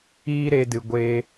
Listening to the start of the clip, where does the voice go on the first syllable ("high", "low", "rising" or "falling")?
high